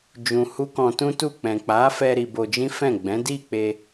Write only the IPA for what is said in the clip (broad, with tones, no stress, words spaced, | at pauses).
d͡ʒũ˧hu˦kɔ̃˧ tũ˦tu˦˨ k͡pɛ̃˨k͡pa˨˦fɛ˧ ɾi˧bo˧d͡ʒĩ˦fɛ̃˦˨ ɡ͡bɛ̃˨˦di˦˨k͡pe˧